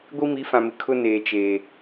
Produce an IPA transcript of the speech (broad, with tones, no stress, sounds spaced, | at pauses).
ɡʷ i˦ m i˨˦ f ã˨ m ɪ˨ kʰ ʊ˦ n eː˨ t͡ʃ eː˨